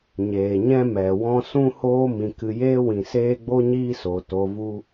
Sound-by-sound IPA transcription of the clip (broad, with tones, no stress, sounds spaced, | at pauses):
ɲ eː˨ ɲ ɛ̃˦ m ɛ˨ w ɔ̃˦ s ũ˦ h oː˦ m ĩ˧ k ɨ˧ j eː˦ w ĩ˨ s eː˦ ɡ͡b o˦ ɲ iː˦ s o˨ t o˧ v u˦